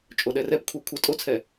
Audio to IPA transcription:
t͡ʃʼ o ɗ ɛ r ɛ p kʷʰ ɛ kʷʰ ə tʼ o t͡sʰ ɛ

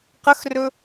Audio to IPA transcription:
q ə x r ɵ

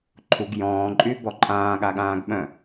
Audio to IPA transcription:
ǃʰ u ɡ j ɔ̃ː ǃʼ y b ɔ ǃʼ ãː ɠ a ɠ ãː ɡ ɓ œ̃

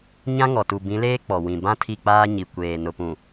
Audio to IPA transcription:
ɲ ã˦ ŋ ɔ˨ t u˨ b ĩ˨˦ l eː˦ k͡p ɔ˨ w ĩ˨ b ã˦ tʰ i˦˨ k͡p aː˦ ɲ i˨ kʷ eː˨ n ʊ˨ p ũ˨

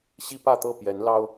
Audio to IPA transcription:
ɕ i˦ p ä˥˨ t̪ ɤ˥˨ p j ɛ˨˦ n l ɑ˦ ʊ̯

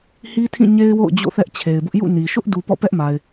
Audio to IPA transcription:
h i˦ tʰ ĩ˦˨ ɲ e˦ ɪ̯ w o̰˦˨ ʊ̯ d͡ʑ o̰˦˨ θ ɛ˦ ʔ t͡ɕʰ e˨ ɪ̯ b ʊ˦ ʔ j ṵ˦˨ n i˨ ʃ ʊ˦ ʔ d u˨ p ɔ̰˦˨ p ɛ˦ ʔ m a˨ ɪ̯

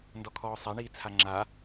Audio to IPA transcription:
n d ɔ kʰ ɔː sˤ a ɳ iː t͡sʰ a ŋ͡ǁ a

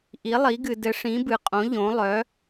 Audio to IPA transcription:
ʔ i˧˥ lˠ i˧˥ ɡ ɨ˧ d ɘ˧˥ ʂ ĩ˧˥ b ɨ˧ qʼ õ˧˥ ʎ õ˧˥ lˠ œ˧˥

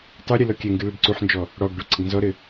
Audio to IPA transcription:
tˤ u ɾʲ ɨ l ɔ kʲ ɛ ŋ ɡ ɨ l ɐ ɖ ǀ u ħ n d͡ʒ ɔ | ɽ ɔ ɡ ɖ o ǀ ɘ ɡ n z ɔ ɾ ɘ

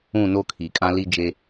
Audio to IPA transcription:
ũ˦˨ n o˦ kʰ i˨ kʼ ã˦ l i˦ d͡ʒ e˦

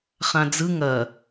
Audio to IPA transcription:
χ ã d͡z ɯ ŋ ɐ

